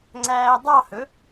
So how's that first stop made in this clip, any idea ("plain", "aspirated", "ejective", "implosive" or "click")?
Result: click